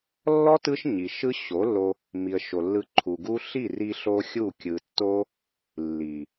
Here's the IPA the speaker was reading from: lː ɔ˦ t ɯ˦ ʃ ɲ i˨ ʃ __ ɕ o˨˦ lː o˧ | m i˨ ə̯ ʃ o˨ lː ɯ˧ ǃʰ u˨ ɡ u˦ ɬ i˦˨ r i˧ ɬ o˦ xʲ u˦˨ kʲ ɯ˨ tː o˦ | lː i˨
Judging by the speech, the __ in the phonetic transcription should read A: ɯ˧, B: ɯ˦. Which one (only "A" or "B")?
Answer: B